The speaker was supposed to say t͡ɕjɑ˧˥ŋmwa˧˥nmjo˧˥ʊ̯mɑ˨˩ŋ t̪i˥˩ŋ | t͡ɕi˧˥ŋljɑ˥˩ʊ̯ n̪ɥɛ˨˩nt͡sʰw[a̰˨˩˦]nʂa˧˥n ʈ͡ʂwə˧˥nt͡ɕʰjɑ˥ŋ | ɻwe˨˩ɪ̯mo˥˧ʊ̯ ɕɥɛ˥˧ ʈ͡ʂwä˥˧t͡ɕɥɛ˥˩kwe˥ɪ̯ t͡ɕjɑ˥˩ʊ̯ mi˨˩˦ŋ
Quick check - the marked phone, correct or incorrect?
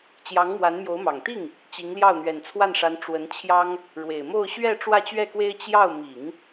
incorrect